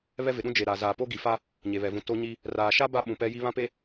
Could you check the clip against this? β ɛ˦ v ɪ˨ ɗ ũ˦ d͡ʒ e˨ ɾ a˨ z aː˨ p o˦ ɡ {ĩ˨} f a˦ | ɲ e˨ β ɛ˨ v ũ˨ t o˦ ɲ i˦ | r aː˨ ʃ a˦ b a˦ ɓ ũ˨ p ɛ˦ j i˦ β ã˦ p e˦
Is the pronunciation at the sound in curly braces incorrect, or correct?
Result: incorrect